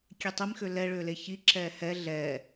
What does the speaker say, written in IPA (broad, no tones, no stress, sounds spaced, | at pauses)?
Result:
kʲ e tˤ i m x ø l ɛ ɭ ø l e ç i ǁ ɛː h ɛ ɮ ɛː